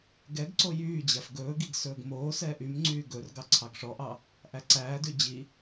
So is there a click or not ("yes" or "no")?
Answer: yes